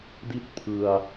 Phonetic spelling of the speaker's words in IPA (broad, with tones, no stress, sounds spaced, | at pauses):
d i˥˩ t̚ pʰ ɯ˧ a̯